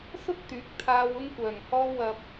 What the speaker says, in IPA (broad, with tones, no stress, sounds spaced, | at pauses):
s ʊ˥ k̚ t̪ yː˨˥ k̚ t̪ʰ aː˧ w ʊ˧ ŋ kʷ œː˨˩ ŋ h ɔː˧ w ɐ˨ p̚